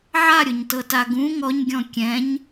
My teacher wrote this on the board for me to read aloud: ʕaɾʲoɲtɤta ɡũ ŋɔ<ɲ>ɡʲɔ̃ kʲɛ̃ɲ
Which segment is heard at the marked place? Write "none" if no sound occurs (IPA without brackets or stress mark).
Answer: ɲ